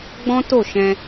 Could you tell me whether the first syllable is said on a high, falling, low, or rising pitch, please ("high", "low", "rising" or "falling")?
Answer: high